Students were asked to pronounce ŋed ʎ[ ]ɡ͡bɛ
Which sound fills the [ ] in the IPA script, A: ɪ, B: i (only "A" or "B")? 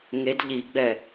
B